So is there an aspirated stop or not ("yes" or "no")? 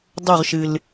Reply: no